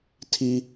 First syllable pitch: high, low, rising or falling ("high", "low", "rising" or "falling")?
high